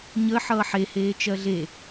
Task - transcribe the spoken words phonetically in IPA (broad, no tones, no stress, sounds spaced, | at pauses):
ɲ ə ħ ʌː ħ e h eː t͡ʃ ɜ ɮ e